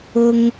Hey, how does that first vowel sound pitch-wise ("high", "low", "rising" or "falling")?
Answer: low